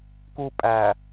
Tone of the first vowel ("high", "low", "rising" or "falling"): high